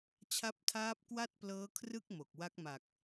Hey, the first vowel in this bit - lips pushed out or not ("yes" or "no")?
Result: no